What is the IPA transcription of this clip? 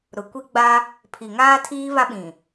ɾ ʊ˨ kʷ i˦ ɡ͡b a˦ | pʰ i˨ ŋ aː˦ tʰ iː˦ β a˦ ɓ ĩ˨

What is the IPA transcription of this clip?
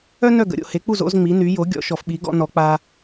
œ˥ n œ˥˩ ɡ ə̰˩˥ ɾʲ o̰˩ h e˩˥ k͡p u˥˩ z o̰˩˥ z ŋ͡m i˩˥ n y˩˥ j o˩˥ ɡʲ ɔ̰˩˥ ʃ ɔ˩ f ɓ i˩˥ ɡ ɔ̰˧ n ɔ˩˥ k͡p a˧

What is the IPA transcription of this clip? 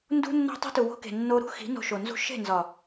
n d ṳ˧ nː o̤˧ tˤ i̤˧ t u˨ w o̤˧ k e̤˨ nː o˧ ɾ ṳ˦ x i̤˨˦ n o̤˧ ʃ o˨ n z ṳ˦ ʃ e̤˦˨ n z ɒ˨

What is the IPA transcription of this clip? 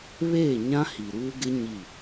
β eː˦˨ ɲ ã˦ h i˨ ɾ uː˦ ɡ ɪ˦ ɲ i˦˨

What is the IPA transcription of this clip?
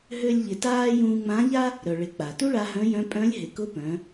ɦ ø˥ lʲ ʎ ɪ˧ t aː˥ j ũː˧ ŋ͡m ã˧˥ ʎ a˥ | ɾ œ˩ ɭ ɪ˩˧ k͡p a˩ t u˥ ɭ a˧ ɦ œ̃˧˥ j œ̃˧˥ pʼ œ̃˧˥ lʲ ɦ ɪ˩˧ k ʊ˧˥ p œ̃˩˧

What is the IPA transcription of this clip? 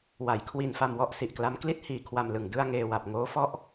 w a˩˦ j kʰ w i˧ n f a˧ m w ɔ˥˩ ʔ s i˨˩ ʔ k l a˦˥ m k l i˥˩ t̚ h iː˧ kʰ w a˧ m l ɯ˨˩ ŋ d ɯ˧ a̯ ŋ eː˧ w a˨˩ p̚ ŋ oː˦˥ f ɔ˥˩ ʔ

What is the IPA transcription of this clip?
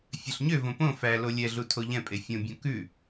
fʲ œ ɬ ɲ ø v õ p õ f æ l o lʲ ɛ ɮ u tʰ o ʎ ɛ̃ pʼ e fʲ õ bʲ õ k ʉ

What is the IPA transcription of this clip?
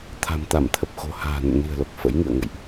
t̪ʰ a̤˨˩ m t̪ a˧˩ m t̪ʰ ə˨˩ p̚ x o̤˨˩ h a̤ː˨˩ n ə̰˧˨ m n i̤˨˩ ə̯ l o˨˩ k̚ f ə̰˧˥ j ŋ ɨ̰˧˨ ə̯ ŋ ə̰˧˨ j ʔ

